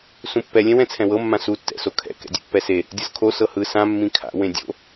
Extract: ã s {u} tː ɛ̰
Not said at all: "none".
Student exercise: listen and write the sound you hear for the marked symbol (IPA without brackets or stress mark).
u